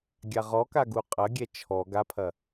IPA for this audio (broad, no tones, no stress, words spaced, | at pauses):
ɡʲaʁɔka ɡuqʼɐɡʲɛ t͡ʃʰɔ ɡapʰɐ